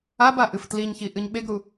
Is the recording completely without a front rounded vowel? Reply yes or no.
yes